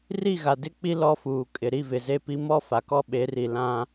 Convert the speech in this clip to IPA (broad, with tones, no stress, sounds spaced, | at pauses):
r i˦˨ ɣ a˨ d ɪ˦˨ k͡p i˦ l ɔ˦ f uː˨ kʼ ɪ˨ ɾ i˦˨ v ɪ˨ z e˦ p i˦ m ɔ˦ f a˨ k ɔ˦ ɓ e˨˦ r i˨ l ã˦